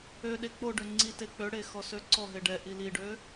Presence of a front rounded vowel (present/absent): present